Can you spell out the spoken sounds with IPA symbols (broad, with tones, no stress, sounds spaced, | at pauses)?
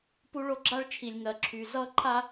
p u˦ ɭ o˦ ɡ͡ǁ a˦ ɭ t͡ʃʰ i˨ lʲ ŋ ɜ˨ ǁʰ y˨ z ʌ˦ ǃʰ a˦